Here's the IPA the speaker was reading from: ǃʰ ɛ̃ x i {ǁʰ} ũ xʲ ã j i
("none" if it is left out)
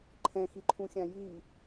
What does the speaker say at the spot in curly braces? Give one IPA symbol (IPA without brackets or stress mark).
ǃʰ